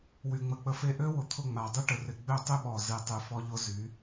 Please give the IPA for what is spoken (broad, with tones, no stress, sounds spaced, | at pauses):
w y˨ ŋ͡m ə˨ k͡p ə˧ f e˦˨ ʔ ø˦ w ʊ˨ t̪ʰ ʊ˦˨ ŋ͡m a˨ dˤ y˦ ʈ ə˨ r ɪ˨ ɡ͡b ø˦˨ tˤ y˦ ɓ ɔ˨ z i˨ tˤ y˨ f ɔ˧ ʎ ʊ˧ z y˨˦